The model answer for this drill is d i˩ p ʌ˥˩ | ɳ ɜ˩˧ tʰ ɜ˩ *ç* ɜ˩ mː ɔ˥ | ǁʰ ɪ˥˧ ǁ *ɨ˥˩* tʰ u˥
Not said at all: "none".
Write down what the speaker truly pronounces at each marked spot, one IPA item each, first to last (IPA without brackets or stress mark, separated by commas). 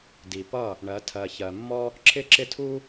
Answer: ç, ɪ˥˩